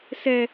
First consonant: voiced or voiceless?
voiceless